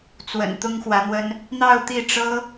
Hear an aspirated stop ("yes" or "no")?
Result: no